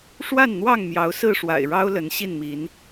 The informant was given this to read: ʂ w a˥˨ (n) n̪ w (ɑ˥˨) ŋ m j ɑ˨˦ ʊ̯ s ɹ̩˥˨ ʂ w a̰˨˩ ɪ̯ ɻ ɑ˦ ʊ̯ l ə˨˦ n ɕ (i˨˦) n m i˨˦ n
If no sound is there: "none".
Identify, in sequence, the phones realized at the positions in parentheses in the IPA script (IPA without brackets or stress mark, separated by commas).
n, ɑ˥˨, i˥˨